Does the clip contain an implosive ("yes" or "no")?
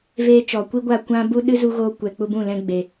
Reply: yes